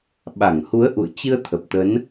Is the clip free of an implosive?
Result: no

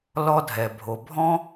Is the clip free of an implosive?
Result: yes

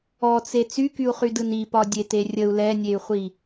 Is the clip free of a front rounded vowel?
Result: no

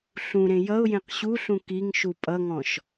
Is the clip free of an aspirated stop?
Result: yes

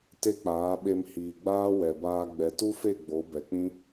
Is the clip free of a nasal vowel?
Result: no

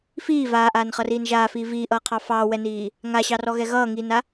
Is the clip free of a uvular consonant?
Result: no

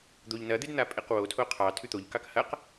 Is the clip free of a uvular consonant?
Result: no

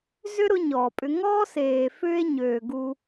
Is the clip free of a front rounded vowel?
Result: no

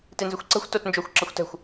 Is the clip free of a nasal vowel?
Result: yes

